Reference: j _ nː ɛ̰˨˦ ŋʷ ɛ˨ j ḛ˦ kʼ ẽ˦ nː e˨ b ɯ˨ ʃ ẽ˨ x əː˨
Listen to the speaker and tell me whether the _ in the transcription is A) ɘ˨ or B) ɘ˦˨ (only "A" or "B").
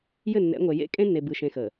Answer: B